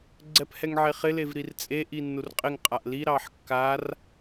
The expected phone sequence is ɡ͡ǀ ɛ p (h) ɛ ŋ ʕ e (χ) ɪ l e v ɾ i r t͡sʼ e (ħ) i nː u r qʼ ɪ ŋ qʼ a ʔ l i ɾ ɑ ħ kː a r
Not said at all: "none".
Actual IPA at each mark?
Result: h, χ, ʔ

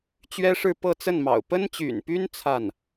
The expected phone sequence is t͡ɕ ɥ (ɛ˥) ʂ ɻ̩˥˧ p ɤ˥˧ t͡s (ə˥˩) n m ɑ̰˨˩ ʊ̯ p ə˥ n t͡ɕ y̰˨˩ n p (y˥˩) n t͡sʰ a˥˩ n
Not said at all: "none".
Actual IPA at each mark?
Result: ɛ˥, ə˥˩, y˥

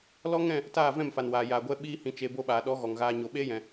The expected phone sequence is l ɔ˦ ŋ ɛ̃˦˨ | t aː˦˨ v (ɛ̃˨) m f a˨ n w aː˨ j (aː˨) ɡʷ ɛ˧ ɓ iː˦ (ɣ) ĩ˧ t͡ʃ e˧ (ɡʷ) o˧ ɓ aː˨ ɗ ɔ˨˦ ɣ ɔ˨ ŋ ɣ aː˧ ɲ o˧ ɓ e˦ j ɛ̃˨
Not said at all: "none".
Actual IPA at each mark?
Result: ɛ̃˦˨, aː˨, h, b

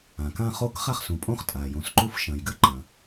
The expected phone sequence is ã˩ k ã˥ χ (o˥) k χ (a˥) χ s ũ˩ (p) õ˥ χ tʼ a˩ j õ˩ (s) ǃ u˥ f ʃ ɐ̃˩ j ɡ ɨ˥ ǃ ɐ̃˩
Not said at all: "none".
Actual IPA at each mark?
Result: o˥, a˥, pʼ, s

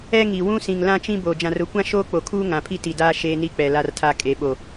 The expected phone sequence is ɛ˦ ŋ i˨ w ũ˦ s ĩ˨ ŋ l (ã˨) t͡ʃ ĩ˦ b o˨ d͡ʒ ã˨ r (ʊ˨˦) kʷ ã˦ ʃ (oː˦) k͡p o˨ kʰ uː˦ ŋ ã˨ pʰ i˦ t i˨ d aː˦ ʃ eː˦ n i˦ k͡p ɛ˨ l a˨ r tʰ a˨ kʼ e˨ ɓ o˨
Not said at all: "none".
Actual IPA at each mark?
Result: ã˦, ʊ˨˦, oː˦

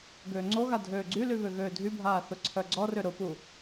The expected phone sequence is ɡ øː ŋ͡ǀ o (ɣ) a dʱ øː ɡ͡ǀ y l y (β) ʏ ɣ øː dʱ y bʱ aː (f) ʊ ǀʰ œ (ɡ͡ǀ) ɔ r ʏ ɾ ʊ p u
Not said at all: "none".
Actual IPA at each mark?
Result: ɣ, β, θ, ɡ͡ǀ

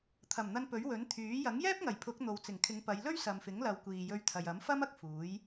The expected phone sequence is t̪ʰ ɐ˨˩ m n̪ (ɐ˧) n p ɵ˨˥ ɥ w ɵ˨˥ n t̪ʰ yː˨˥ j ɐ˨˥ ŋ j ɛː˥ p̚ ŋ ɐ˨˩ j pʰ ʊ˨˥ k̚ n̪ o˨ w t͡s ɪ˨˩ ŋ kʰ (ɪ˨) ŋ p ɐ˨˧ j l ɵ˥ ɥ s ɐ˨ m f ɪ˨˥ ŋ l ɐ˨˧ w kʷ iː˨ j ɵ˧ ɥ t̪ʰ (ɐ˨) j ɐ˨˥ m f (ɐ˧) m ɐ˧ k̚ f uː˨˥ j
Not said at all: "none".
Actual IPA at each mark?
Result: ɐ˧, ɪ˨˧, ɐ˨, ɐ˥

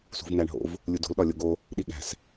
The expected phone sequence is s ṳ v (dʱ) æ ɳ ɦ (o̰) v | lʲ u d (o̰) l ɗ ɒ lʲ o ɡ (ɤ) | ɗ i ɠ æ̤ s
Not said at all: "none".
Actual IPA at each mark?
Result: n̪, o̰, o̤, o

